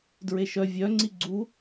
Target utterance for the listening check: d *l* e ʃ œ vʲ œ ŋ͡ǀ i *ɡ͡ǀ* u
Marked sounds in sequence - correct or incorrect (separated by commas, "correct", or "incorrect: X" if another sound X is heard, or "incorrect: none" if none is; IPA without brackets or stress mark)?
incorrect: ɹ, correct